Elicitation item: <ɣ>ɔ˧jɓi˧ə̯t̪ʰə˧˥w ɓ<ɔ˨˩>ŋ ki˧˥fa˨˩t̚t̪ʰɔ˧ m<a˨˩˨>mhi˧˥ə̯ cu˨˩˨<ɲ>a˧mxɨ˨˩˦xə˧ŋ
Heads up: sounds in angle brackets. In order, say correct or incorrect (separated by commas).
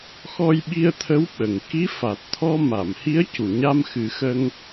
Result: incorrect, incorrect, correct, correct